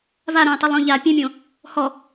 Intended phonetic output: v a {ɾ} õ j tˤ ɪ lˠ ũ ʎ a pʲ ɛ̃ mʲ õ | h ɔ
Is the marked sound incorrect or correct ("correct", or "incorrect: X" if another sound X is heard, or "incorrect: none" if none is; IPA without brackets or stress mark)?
correct